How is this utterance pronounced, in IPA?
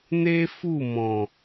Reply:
n e˦ f u˦˨ m ɔ̃˨

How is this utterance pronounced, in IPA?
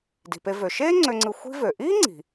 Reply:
d i̤˩ p e˨ v ø˩ ʃ eː˥ ŋ͡ǀ ø˨ ŋ͡ǀ ɯ˨ xʷ i̤˥ v ø˩ ʔ iː˥ ŋ͡ǀ i̤˩

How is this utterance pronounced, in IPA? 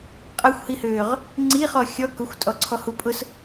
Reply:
qʼ ɐ xʷ h i h øː ʁ | ŋ͡ǀ i χ ɔ xʲ ɔ k ʊ xʷ tʼ ɔ ǀʰ ɔ h u pʼ ʊ s

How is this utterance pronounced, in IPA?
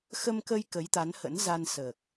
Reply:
x ə˧ m k ə˧ j k ə˨˦ j t̪ a˨˦ n h ə̰˧˥ n z a˧ n s əː˨˩ k̚

